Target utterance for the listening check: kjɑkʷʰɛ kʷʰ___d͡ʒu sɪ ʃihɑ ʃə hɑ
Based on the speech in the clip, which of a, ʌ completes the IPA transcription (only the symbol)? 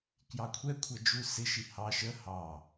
ʌ